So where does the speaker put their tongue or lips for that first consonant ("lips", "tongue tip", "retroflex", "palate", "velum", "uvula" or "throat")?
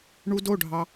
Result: retroflex